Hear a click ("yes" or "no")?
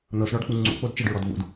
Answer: yes